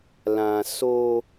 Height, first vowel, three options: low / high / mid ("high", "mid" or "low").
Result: low